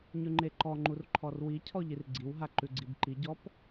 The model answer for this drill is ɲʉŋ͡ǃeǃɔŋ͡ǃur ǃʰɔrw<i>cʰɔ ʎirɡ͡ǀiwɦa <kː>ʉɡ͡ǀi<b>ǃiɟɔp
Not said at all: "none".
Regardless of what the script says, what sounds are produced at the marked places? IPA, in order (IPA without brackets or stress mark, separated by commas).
i, ǃ, b